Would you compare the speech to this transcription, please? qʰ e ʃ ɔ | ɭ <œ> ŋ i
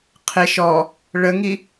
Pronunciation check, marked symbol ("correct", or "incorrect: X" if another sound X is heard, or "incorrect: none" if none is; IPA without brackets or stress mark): incorrect: ə